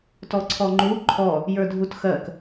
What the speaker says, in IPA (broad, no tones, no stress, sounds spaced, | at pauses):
t ɔ ǀʰ ɔ ŋ͡ǃ u ǃʰ ɔ | j ə˞ dʱ u t x ɜ k